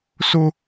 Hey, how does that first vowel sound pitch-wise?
high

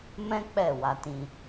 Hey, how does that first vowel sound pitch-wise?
high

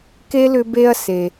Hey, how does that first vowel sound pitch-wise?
high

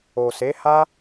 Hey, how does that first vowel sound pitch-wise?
low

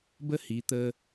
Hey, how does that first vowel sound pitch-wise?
high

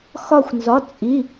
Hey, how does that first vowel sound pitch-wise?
falling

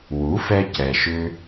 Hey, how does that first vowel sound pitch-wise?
rising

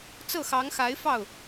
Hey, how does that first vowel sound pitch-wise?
falling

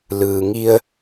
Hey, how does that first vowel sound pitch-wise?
low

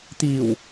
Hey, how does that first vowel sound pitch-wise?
low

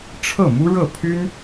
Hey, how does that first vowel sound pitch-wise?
falling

